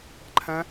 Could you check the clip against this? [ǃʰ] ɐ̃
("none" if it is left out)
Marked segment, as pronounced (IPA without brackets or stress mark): ǃʰ